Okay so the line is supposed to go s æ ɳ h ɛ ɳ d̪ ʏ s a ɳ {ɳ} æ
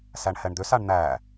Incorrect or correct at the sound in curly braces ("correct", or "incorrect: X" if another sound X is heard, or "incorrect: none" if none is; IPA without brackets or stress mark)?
incorrect: n̪